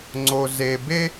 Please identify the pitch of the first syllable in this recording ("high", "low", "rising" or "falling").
low